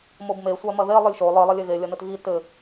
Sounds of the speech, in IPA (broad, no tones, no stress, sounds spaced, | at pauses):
m o b m e sʷ a m ɐ ð e lˠ ɨ lʲ ʃ o lˠ ɨ lˠ ɐ lʲ e ɣ e lʲ ɐ n ɘ t ɣ i t ɘ